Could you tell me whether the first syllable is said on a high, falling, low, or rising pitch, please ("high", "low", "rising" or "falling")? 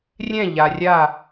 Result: falling